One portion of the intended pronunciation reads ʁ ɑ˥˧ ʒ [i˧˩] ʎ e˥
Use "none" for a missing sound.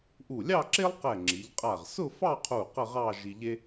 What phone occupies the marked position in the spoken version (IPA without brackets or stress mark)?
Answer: i˧